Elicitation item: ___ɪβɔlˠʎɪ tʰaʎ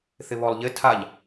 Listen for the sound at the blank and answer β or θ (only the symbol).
θ